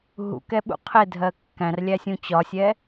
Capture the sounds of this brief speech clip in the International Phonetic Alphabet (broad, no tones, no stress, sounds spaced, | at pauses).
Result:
ɦ ṵ k ɛ ɓ ṵ qʰ ɪ dʱ ɜ kː æ̃ r lʲ æ sʲ ũ t͡ɕ ɒ sʲ ɛ